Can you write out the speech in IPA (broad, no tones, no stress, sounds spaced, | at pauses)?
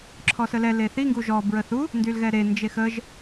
ǁʰ ɔ s ə l ɛ l e θ i ŋ ɡ u ʒ ɔ b ɹ ə θ u | n d y l ɣ ɛ ɾ e n d͡ʒ e x ə ʒ